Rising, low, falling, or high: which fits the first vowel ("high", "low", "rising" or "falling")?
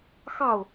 falling